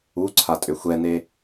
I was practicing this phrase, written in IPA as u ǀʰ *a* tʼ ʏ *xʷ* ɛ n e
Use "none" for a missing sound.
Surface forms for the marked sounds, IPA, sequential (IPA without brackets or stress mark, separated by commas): a, xʷ